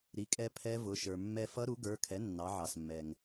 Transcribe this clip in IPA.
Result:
ɾ i˩˥ kʼ ɛ˧ pʰ ɛ˦˥ v ʊ˩˧˩ ʃ ə˞˩ mː ɛ˧ f ʌ˦˥ ɾ u˩˥ ɡ ə˞˩˧˩ kʰ ɛ˩˥ nː ɑ˩˧ ʕ ɑ˩ s mː ɛ˩ ŋ

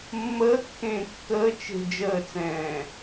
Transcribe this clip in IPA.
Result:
mː əː kː ẽː kː əː t͡ʃ e̤ d͡ʒ əː t͡s ɛ̃ː

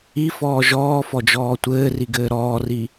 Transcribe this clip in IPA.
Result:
i f ɔː ʒ ɔː f ɔ d͡ʒ ɔː tʷ ɘː r i ɡ ɘː ɾ ɔː r i

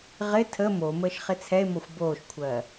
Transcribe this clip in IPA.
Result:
ʁ ɪ tʰ ə m o m əː ʃ χ ɪ t͡sʰ ɛ e̯ m ɔ xʷ b oː ʃ kʷʰ ɜ

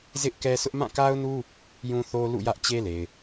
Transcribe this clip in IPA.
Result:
z ɪ˦ ʔ k ɛ˦ sʰ ʊ˦ ʔ m ã˦˨ k a˦ ʊ̯ n u˦ | j ũ˦ θ o˦ l ṵ˦˨ j ä˦ ʔ t͡ɕ e˦ l e˨ ɪ̯

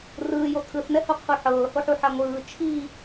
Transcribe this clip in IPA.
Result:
r ɯː j o tʰ ɯ θ n ɛ h o qʰ u ħ ɤː h o ħ u ħ a ŋʷ ɯː t͡ʃʰ i

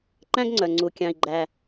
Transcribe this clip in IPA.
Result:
ǃ æ̃˥ ɡ ŋ͡ǀ œ˩ ŋ͡ǀ u˩ kʲ ɑ̃˩ i̯ ɡ͡ǃ æ˩

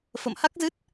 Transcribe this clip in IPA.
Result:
f ə̰˧˨ m h a˦˥ k̚ z ɨ˦˥ t̚

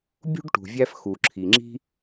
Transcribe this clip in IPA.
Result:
bʲ ṳ˥ ɖ ʈ ṳ˨ vʲ æ˦ f x u˩ ǁʰ i˩ ŋ͡ǁ i̤˥

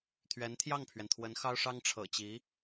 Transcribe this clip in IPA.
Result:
t̪ʰ ɥ ɛ˧˥ n t̪ʰ j ɑ˥˩ ŋ pʰ ɥ ɛ˩ n t̪ʰ w ə˧˥ n x ɑ˥ ʊ̯ ʂ ɑ˥ ŋ ʈ͡ʂʰ ɤ̰˨˩ t͡ɕ i˧˥

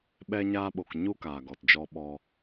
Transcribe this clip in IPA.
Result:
ɓ ɛ˧ ɲ aː˧ ɓ o˨ k ɲ u˦ k aː˨ ɡ ɔ˨ t d͡ʒ ɔ˧ ɓ ɔ˧

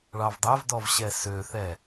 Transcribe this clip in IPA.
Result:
ɭ ɑ v dˤ æ v d ɔ v ɕ ɛ s ø θ ɛ

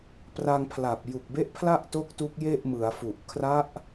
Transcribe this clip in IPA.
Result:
p r a˧ ŋ pʰ l a˨˩ p̚ j u˨˩ k̚ b e˦˥ ʔ pʰ l a˥˩ ʔ t o˦˥ k̚ t u˦˥ k̚ j e˥˩ ʔ m ɯ˩˦ a̯ f u˨˩ ʔ kʰ r a˦˥ ʔ

